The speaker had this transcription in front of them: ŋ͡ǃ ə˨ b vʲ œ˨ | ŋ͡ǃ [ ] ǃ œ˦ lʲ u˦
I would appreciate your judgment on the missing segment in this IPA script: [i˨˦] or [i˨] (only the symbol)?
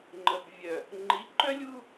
i˨˦